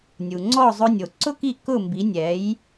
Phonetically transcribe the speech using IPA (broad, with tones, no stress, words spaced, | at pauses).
nʲu˩ŋ͡ǀɔ˥˩zˤʊ˧nʲo˩ ǀʊ˥ki˥˩ kʊ˥˩mbi˩˥ nʲɛ˩˥j